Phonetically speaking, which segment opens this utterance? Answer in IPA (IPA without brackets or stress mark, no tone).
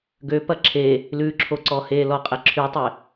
ɡ